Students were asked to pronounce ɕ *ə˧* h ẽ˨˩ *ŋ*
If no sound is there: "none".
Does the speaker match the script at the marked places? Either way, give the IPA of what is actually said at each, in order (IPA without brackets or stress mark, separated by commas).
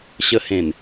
ə˧, n